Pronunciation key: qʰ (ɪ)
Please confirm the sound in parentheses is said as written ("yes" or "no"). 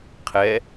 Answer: no